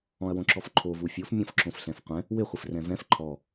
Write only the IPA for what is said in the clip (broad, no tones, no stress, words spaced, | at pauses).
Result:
ɔ̃ɐ̯wõǁɔfǃʰo vufʲof mʲɔ̃fǁõfɬɛ̃fqʷɛ̃ | wɪ χʷɪfrɛ̃vɛ̃f ǃʰɔ